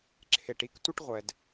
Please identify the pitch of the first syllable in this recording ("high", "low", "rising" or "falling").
low